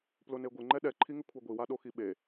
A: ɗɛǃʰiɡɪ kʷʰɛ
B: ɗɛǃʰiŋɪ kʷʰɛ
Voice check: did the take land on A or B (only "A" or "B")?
B